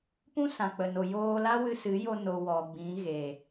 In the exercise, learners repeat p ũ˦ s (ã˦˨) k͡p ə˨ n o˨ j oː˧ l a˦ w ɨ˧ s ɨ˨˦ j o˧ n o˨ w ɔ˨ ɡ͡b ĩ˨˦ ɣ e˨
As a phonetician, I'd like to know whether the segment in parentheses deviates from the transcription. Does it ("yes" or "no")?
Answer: yes